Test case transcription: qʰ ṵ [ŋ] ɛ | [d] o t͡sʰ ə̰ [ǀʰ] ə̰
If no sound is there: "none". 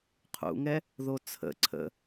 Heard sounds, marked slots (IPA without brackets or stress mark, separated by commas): ŋ, ð, ǀʰ